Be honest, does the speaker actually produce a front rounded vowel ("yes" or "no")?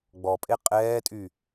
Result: yes